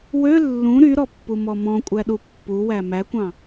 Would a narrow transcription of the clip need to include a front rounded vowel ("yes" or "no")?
yes